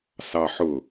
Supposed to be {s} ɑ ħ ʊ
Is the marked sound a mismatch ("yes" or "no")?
no